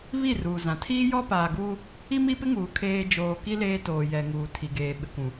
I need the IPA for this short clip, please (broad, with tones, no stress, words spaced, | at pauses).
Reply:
βi˦˨ruː˨zã˨ tʰiː˦jɔ˦paː˨ɡuː˦ | i˦mi˦pɪ˦ŋuː˨ kʰeː˦ d͡ʒoː˨ki˦ leː˦toː˨jɛ˨ŋuː˨ tʰi˨ɡeː˨ɓɪ˨kʷũ˨